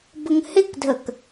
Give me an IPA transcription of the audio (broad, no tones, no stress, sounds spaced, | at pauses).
b ə ŋ h ɪ k dʱ ə k